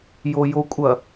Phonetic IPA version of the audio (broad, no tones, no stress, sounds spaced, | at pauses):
j o j o kʷʼ ɐ